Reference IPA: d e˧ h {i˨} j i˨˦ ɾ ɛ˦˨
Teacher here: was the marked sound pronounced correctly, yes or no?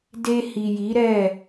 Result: yes